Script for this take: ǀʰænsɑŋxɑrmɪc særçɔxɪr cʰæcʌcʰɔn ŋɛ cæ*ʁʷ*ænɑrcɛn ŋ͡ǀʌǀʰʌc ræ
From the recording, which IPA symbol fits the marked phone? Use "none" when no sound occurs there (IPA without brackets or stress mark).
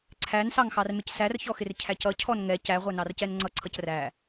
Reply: ʁʷ